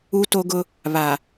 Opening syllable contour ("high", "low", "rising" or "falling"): high